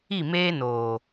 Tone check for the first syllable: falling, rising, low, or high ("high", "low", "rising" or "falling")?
falling